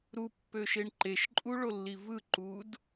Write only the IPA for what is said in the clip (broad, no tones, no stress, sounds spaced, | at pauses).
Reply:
ɾ u pː ø ʃ e ɳ ǃ e ʃ ǃʼ u ɭ o lː i v ɯ ǃ u d